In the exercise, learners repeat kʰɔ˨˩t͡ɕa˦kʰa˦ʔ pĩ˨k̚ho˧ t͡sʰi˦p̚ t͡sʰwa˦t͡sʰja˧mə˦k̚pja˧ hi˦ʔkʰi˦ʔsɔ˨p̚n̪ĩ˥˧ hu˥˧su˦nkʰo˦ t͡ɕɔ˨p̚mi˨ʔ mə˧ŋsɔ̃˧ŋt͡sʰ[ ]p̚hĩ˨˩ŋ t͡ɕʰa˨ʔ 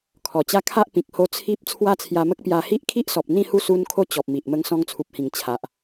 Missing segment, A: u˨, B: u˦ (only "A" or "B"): A